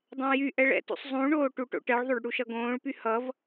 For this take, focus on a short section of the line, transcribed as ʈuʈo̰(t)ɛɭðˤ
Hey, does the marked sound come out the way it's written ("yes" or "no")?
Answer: no